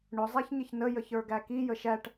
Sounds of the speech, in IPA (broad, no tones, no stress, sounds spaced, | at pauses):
ɳ ʊ zˤ æ ç ɲ ɪ ç n ə j ə ç ə˞ ɡ æ k i j ə ʃ æ ʈ